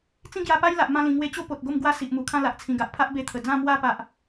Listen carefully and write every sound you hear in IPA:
t͡sĩ˥˧ ɡja˧pa˦j la˨ʔmã˧ lĩ˨˩ŋwe˧t͡ɕo˦ po˨t̚ɡo˥˧m ɡwa˦si˨ʔmu˨˩kʰã˥˧ la˨ʔt͡sʰĩ˨˩ɡa˨ʔ pʰa˦ʔbe˧t̪ʰə˨˩ d͡zã˥˧mwa˥˧ pa˦ʔ

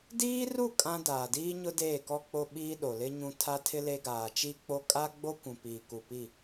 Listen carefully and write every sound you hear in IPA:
diː˦ru˦˨ kʼã˦ daː˨diː˦ɲʊ˦ deː˦˨kɔ˦k͡po˦ ɓiː˦ɗo˨lɪ˦ ɲũ˦ tʰa˦tʰɪ˦ le˦ɡaː˨ t͡ʃi˦k͡po˦ kʼa˦ɡ͡bo˦ kʷũ˨piː˨ ku˨pi˦˨

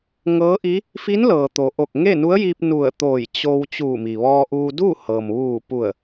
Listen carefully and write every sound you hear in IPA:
ŋɤː˧˥ʔi˧˥ | fi˧˥nlɤː˩t̪o˩ʔo˧˩k̚ ŋe˥˨nu˧˥ə̯ji˧p̚ nu˧˩ə̯t̪oː˧˩j t͡ɕo˧w t͡ɕuː˧˩mi˩ʋɔː˧ʔuː˧ du˥˨hɤː˩m ʋuː˧˩pu˧˩ə̯

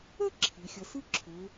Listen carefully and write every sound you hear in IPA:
ə˥ ǁʰi˩˧xʲɐ˧ sɯ˥ǁʰø˩˧

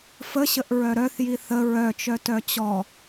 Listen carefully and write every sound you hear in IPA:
fəɕəʔɹœ ɾœθji θə ɹœt͡ʃœtœ t͡ɕɔ

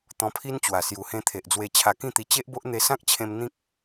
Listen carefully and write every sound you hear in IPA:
t̪ɔ̃˧pʰi˦n t͡ɕwa˨˩ sju˨˩hẽ˧t̪ʰe˨ʔd͡zwe˧ t͡ɕʰa˧kĩ˥˧t̪i˧ t͡ɕe˦ʔbo˦ʔ n̪e˧sã˦k̚t͡ɕʰẽ˧m n̪ĩ˦k̚

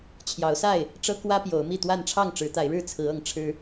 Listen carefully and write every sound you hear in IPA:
t͡ɕʰjɑ˨˦ʊ̯sa˥˨ɪ̯ | ʈ͡ʂɤ˦kwä˦ pjo˨˦ʊ̯mi˥˨t̪wa˥˨n ʈ͡ʂʰɑ˥˨ŋ ʈ͡ʂɻ̩˨˦t̪a˨˦ɪ̯ɻɻ̩˥˨ t͡sʰɹ̩˨˦ɤ˨˦ŋ ʈ͡ʂʰɻ̩˦

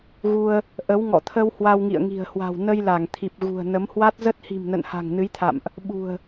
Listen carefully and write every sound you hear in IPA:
ɣu˧ə̯ | ʔə˨˦w ŋɔ̰˧˨t̪ʰə˧w hwa˧wŋḭ˧˨ə̯ŋi̤˨˩ə̯hwa̤˨˩w nə˧jla˧˩ŋt̪ʰi˨˩p̚ ɣṳ˨˩ə̯ nə˨˦mhwa˦˥t̚ zə˦˥t̚hi̤˨˩mnə̰˧˨nha̤˨˩ŋ nɨ˨˦jt̪ʰa̰˧˨mʔ | ɓṳ˨˩ə̯

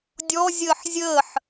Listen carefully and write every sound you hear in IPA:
dʲɔ zʲəːħzʲəːħ

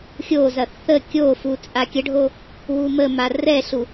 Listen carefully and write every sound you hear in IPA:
xʲozɐ θə kʲofu t͡sʼakʲəɖʱo | wuməma rɛɬu

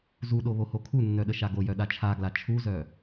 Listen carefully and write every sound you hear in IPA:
zuɗo βohokʰunːœ ɗəʃaɡojœ ɗat͡ʃʰaɡla t͡ʃʰuzœ

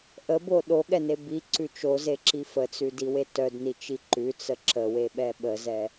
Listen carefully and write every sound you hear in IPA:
ʔəbo ɗoɠɛne biǀʉ t͡ʃozeǁi fət͡sʉdiwe tœdnit͡ʃi ǃʉt͡sə ǁəweɓɛ ɓəzɛ

